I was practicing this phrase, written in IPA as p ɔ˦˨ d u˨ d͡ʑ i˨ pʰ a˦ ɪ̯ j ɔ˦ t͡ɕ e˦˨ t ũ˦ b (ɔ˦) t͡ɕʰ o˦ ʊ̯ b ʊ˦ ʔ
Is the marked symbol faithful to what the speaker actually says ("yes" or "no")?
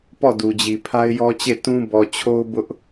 no